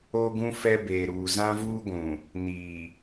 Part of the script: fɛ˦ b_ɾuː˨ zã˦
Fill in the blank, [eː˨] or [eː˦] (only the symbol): eː˨